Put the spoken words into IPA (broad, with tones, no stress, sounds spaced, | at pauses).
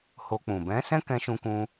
h o˧ k͡p ũ˨ b ɛ̃˨˦ s ɛ̃˦ k ɛ̃˧ ʃ ũ˧ k ũ˧